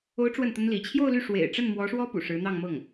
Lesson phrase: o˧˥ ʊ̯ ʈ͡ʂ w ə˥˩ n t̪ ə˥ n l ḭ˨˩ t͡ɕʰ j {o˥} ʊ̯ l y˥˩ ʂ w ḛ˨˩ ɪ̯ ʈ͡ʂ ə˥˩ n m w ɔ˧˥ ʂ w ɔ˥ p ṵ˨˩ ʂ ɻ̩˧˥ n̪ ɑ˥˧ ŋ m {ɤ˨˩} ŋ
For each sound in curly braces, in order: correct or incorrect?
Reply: incorrect, incorrect

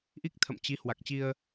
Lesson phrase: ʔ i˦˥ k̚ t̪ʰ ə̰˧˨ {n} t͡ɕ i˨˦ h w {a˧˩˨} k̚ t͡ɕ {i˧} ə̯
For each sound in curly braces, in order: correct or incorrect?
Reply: incorrect, incorrect, correct

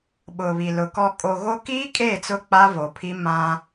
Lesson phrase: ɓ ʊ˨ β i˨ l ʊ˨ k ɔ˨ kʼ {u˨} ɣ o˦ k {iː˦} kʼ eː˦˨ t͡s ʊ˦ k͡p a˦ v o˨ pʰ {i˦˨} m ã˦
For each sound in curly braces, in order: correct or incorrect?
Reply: incorrect, correct, incorrect

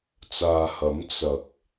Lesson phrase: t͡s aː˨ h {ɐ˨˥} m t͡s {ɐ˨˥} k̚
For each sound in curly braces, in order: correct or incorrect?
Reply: correct, incorrect

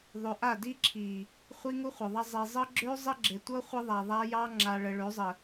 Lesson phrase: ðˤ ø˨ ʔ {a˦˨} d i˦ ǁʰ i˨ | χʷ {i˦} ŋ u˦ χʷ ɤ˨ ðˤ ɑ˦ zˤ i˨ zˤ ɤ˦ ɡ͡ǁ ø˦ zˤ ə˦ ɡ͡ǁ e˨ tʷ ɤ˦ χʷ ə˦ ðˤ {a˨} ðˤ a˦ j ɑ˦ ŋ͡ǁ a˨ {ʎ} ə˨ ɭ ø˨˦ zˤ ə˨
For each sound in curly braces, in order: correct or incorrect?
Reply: correct, correct, correct, incorrect

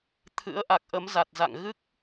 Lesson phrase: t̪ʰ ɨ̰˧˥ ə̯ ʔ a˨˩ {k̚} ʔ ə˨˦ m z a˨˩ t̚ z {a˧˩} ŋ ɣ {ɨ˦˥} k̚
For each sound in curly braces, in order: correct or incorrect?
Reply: correct, incorrect, correct

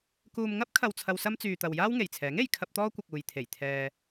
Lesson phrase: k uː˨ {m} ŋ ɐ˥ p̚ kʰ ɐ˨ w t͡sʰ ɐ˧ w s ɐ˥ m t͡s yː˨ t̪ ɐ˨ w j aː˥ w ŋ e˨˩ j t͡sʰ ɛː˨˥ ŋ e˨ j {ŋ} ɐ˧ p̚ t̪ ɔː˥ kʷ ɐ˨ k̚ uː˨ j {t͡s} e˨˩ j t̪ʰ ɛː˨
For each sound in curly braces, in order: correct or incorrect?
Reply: correct, incorrect, incorrect

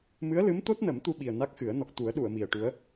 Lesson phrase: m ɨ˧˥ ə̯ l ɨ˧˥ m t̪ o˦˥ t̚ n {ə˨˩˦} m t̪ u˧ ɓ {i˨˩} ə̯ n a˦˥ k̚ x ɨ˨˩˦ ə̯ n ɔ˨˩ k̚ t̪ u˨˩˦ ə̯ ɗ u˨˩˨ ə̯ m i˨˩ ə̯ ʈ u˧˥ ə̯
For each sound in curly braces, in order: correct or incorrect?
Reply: correct, correct

